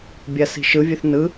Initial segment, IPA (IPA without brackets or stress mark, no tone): bʲ